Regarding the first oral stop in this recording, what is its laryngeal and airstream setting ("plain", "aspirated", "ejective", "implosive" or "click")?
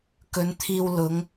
plain